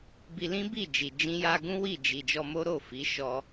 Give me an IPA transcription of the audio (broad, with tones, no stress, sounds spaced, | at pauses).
b i˧ l ĩ˦ b i˦˨ d͡ʒ i˨ d͡ʒ ĩ˧ j a˧ ɡ ũ˦ w i˦˨ d͡ʒ i˨ d͡ʒ ɔ˧ m o˦ ɾ o˦˨ f i˨˦ ʃ ɔ˦